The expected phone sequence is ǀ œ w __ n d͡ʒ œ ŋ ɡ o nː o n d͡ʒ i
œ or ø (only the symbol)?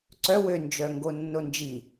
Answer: ø